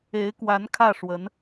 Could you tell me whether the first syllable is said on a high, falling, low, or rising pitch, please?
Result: rising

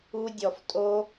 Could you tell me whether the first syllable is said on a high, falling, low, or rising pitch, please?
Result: high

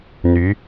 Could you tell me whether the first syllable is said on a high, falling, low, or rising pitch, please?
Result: rising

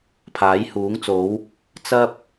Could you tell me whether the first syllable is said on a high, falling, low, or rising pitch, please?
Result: rising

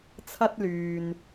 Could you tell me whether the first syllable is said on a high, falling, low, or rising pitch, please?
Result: high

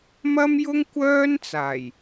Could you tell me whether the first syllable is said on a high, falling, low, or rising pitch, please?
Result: high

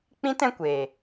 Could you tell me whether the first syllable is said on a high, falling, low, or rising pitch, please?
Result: high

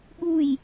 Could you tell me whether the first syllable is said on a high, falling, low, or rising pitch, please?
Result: falling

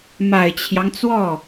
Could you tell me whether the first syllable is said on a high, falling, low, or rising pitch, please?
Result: low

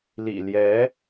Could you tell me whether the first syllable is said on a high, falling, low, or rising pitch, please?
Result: low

